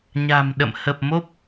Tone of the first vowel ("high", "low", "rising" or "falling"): low